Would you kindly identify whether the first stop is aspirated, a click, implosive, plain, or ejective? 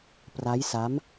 plain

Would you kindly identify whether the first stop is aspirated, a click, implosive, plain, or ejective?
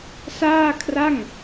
aspirated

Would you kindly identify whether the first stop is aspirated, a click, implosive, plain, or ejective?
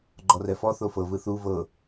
click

